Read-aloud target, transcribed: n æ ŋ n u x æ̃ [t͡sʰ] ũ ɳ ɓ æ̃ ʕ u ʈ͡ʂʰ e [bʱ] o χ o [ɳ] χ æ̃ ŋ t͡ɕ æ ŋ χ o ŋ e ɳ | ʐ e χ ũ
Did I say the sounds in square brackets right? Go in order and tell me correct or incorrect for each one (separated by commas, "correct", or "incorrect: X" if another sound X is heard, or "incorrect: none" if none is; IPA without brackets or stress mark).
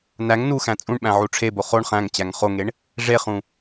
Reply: incorrect: t͡sʼ, incorrect: b, correct